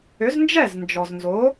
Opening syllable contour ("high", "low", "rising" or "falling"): rising